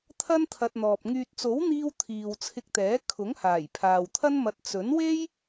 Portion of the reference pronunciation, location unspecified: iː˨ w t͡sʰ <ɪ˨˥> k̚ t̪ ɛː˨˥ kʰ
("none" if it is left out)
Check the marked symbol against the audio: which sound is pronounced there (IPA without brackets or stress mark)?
ɪ˧